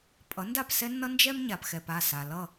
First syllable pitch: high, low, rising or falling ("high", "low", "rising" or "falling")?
rising